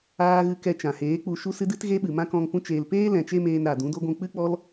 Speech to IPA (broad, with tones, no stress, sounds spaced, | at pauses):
aː˦ ɣ ɨ˧ k ɛ˧ t͡ʃ ã˨ h eː˨˦ k͡p u˧ ʃ u˦ s ɨ˦ d ɨ˦ t ɣ e˦ ɓ ɨ˨ m ã˦ k ɔ̃˧ ŋ p ũ˦ t͡ʃ eː˧ l p eː˦ l ɛ̃˧ t͡ʃ e˦ m eː˧ n ɾ a˨ d ũ˨˦ d o˦ ɡʷ ũ˧ k͡p ɨ˦ k͡p ɔ˦ l